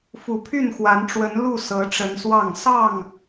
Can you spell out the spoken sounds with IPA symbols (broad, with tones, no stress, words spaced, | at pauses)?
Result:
fu˨˩pʰy˥˨nxwa˨˦nʈ͡ʂwə˨˦n lu˥˨ sɤ˨˦ʈ͡ʂə˨˦nswɑ˥˨ŋ sɑ˥˨ŋ